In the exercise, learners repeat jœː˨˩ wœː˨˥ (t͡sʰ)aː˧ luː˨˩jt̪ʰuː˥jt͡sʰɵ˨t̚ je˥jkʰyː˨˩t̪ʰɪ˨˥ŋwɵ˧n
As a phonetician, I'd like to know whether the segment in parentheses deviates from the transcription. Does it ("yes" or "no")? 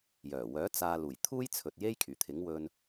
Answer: yes